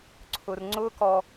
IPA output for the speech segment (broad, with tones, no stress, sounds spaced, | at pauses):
ǀʰ ʊ˦ r ŋ͡ǀ ʊ˦ k ɔ˦